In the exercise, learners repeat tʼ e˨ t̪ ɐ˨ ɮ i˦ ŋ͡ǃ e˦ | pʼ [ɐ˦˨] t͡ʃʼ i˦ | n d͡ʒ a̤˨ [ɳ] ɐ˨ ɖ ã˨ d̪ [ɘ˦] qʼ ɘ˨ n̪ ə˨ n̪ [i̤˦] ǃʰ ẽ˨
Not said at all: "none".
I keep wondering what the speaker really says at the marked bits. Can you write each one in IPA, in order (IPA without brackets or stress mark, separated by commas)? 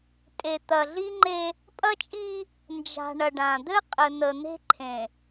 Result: ɐ˦, ɳ, ɘ˦, e̤˦